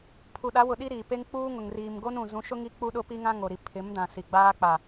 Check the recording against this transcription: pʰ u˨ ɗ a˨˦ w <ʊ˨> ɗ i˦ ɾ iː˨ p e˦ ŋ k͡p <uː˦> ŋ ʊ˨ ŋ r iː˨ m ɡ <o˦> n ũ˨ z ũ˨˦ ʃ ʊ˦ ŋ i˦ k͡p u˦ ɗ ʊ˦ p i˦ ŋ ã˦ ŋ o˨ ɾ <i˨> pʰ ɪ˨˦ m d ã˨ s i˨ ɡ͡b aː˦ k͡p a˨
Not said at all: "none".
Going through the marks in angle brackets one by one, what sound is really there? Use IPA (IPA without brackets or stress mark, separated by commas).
ʊ˨, uː˦, o˦, i˨